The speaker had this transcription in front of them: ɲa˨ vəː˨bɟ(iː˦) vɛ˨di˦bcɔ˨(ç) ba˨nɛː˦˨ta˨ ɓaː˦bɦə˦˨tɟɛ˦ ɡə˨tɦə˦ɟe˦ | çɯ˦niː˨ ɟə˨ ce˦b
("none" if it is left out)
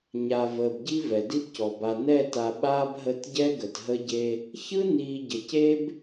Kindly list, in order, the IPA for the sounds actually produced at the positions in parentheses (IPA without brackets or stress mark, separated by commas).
i˦, none